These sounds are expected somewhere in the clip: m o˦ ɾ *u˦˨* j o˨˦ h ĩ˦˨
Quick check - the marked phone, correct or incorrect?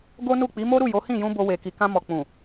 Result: correct